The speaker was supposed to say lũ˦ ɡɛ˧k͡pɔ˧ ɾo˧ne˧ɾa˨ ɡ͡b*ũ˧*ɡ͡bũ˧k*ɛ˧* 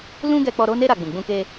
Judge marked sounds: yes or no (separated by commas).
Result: no, no